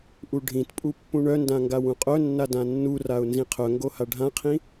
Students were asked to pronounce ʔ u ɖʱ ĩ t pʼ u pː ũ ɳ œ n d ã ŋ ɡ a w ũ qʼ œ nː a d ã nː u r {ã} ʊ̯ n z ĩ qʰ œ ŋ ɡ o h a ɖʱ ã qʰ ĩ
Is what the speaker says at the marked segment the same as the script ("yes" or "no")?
no